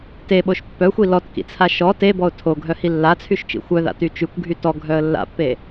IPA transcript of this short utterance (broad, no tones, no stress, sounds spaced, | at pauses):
t e ɓ o ʃ pː œ xʷ i l ɔ t k ḭ t͡sʰ a ʃ ɔ t e b ɔ ʊ̯ tʰ o ɡʱ œ h i lː a t͡sʰ y ʃ t͡ʃ ḭ xʷ œ ð a̰ t y t͡ʃ y kʷ ɡʱ y t ɔ ɡʱ œ ə̯ lː a̰ pː e